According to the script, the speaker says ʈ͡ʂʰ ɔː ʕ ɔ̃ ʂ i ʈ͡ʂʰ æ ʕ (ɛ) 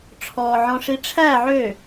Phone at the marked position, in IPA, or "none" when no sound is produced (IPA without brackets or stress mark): ø